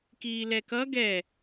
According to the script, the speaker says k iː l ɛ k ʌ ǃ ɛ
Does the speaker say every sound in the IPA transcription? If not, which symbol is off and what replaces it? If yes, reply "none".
ǃ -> ɡ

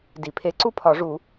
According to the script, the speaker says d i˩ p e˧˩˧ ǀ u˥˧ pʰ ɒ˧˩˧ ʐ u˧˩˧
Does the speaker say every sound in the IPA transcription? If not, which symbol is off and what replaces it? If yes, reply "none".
p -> pʰ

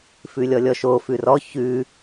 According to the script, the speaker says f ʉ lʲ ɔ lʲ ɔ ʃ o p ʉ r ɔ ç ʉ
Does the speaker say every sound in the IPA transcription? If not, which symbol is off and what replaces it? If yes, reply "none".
p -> f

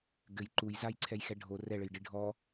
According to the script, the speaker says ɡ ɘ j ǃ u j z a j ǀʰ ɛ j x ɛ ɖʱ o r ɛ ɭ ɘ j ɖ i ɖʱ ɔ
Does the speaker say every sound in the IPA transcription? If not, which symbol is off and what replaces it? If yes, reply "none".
none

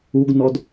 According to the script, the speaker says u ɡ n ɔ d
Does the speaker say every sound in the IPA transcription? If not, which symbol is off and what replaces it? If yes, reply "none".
none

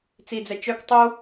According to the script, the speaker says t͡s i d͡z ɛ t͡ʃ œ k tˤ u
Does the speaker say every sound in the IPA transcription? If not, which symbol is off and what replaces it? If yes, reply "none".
none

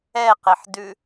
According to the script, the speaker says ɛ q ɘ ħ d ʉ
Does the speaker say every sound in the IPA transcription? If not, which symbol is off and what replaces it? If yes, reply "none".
none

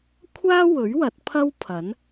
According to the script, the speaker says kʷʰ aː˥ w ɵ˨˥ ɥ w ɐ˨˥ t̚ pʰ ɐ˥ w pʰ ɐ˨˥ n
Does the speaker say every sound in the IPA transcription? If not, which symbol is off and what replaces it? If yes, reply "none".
none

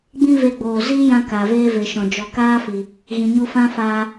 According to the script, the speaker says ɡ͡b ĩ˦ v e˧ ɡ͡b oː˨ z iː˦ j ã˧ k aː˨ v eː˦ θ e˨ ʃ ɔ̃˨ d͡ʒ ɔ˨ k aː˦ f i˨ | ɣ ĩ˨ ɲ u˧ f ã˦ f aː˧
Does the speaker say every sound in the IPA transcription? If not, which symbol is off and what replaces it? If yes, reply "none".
θ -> v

